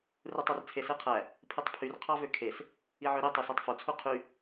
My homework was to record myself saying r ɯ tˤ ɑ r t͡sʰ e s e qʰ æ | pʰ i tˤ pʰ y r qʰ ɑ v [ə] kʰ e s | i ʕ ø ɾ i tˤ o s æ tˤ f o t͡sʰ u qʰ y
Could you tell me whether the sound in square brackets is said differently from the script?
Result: yes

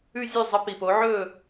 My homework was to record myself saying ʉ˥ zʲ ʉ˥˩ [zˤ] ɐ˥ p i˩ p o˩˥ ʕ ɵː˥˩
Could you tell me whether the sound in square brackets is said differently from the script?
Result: no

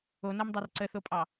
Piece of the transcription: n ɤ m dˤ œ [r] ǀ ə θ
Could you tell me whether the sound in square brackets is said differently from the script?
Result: no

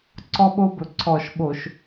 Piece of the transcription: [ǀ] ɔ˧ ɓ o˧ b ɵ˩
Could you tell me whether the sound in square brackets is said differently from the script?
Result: no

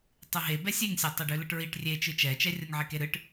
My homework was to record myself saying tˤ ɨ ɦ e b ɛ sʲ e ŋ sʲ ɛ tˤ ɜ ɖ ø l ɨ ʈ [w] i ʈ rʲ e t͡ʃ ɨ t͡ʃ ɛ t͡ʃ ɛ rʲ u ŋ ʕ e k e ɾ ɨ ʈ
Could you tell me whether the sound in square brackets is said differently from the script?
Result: yes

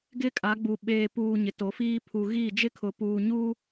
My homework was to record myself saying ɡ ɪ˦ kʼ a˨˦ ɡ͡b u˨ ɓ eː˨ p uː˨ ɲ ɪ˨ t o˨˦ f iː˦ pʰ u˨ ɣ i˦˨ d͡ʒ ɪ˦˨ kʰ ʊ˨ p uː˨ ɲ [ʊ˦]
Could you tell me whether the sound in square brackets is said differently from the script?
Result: yes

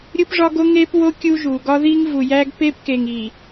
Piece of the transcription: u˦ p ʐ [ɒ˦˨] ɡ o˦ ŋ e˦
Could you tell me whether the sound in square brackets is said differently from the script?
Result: yes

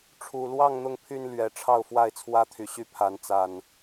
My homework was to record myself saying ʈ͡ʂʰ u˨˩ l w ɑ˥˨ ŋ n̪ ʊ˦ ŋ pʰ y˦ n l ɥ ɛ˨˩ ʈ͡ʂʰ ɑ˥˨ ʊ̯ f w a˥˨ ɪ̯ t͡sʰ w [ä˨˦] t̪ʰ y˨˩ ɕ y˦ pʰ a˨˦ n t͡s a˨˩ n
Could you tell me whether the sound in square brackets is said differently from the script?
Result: yes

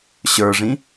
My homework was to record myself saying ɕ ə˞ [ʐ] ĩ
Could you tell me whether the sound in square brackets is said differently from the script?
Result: no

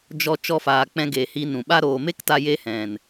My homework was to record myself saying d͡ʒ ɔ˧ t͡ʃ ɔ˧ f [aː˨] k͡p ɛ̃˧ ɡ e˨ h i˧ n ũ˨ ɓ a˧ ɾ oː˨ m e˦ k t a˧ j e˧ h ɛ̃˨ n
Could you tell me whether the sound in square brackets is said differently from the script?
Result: no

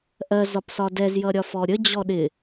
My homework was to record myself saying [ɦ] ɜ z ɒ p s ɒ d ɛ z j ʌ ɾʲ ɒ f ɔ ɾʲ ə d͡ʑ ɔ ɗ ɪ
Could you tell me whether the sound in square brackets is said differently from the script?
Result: yes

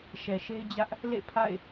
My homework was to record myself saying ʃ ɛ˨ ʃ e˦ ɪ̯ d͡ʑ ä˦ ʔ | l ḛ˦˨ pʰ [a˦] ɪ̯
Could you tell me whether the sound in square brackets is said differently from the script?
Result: yes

